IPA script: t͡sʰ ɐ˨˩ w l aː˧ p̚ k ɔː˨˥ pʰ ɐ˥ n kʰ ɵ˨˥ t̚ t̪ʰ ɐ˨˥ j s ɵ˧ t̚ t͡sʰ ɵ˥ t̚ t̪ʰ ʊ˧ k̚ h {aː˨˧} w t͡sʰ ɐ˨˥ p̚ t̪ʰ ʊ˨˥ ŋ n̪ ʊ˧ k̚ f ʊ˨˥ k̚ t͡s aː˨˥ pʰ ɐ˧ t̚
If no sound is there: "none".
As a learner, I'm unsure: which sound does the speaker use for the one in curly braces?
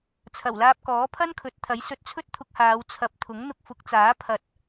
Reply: aː˨˧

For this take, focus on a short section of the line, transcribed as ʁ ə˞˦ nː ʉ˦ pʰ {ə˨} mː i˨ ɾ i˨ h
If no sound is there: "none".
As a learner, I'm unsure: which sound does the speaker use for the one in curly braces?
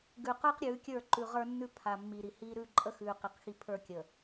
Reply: a˨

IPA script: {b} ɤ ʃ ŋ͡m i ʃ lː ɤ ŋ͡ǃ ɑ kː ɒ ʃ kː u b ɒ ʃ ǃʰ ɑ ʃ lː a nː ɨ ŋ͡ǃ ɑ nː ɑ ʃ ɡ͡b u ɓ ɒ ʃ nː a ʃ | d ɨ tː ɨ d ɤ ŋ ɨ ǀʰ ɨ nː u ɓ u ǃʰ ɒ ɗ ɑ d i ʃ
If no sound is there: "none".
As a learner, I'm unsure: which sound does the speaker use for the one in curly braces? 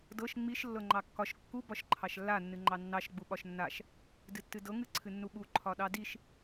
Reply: d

